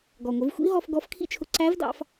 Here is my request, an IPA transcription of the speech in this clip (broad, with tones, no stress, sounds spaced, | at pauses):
ɡ ɔ˩ ŋʷ ɪ˩˧ v xʷ ḭ˧˥ ɦ ɔ˧ f ɡ ɔ˧˥ f kʰ ḭ˥ t͡ʃʰ ʊ˧ ǀ æ˧˥ v d ɑ̰˧ f